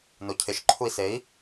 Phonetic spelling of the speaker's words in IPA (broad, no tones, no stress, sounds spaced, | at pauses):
n o cʰ ɪ ʃ ǃʰ u i̯ s e i̯